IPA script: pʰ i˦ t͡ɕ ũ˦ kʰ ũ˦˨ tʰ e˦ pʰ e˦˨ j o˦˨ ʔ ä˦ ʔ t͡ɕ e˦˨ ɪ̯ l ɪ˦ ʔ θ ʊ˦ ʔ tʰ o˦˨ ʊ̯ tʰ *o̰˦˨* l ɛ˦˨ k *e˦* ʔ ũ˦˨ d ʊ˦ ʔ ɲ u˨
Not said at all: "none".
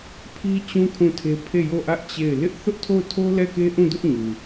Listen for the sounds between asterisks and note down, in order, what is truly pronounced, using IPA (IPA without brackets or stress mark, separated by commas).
o˦, e˦